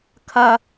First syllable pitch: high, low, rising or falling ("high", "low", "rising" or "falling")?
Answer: high